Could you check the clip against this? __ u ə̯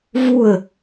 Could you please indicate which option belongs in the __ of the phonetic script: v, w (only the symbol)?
v